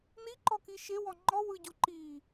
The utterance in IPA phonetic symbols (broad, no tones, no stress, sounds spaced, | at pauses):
n i ǃ ɔ k i ʃ e w ɔ ŋ͡ǃ ɔ w ɯ ɟ u ǃ i